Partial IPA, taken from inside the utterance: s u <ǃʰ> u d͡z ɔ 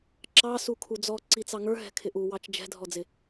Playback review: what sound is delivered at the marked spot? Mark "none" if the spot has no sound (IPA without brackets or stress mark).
kʰ